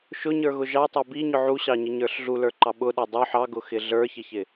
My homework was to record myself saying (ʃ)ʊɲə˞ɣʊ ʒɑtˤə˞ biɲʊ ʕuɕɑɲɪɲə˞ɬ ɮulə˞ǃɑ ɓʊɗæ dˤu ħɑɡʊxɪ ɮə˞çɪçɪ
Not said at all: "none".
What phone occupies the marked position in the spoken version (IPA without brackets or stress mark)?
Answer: ʃ